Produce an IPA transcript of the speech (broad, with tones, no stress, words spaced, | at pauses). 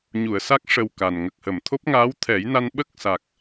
ɲu˨˩˨ə̯sa˦˥k̚ ʂə˨˩w ka˨˩n ŋə˨˩k̚hə˨˩˨mt̪ʰo˦˥p̚ ŋaː˧˥wt̪ʰɛ˨˩˦jna˧n ɓə˦˥k̚sa˨˩k̚